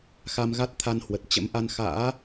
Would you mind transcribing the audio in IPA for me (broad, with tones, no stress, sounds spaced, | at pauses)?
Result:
x a˧ m ɣ a˦˥ t̚ t̪ʰ a˧ n h w ə˨˩ t̚ t͡ɕ ə̰˧˥ m ʔ a˧ n x a̰ː˧˥